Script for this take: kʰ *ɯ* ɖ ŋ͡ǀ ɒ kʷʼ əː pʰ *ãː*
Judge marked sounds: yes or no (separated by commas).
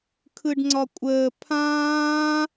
yes, yes